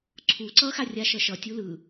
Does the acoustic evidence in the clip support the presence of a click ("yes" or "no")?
yes